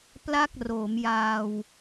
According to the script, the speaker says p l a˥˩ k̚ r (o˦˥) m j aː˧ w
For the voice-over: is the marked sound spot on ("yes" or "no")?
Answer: no